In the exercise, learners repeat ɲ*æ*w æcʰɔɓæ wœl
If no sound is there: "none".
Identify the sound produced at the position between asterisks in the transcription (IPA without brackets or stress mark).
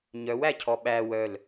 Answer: œ